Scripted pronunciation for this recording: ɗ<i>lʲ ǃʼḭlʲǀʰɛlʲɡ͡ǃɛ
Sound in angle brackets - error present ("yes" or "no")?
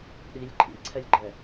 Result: no